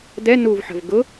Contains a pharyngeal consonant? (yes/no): yes